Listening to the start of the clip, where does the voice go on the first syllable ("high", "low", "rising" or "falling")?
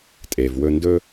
low